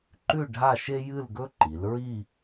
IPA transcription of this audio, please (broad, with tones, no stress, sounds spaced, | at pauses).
ǃ ʉ˥˧ ɖʱ a˥˧ ʃ e˥ j ɨ˥˧ l ɡ ɵ˥ ǃ i˩˧ l ɹ i˥˧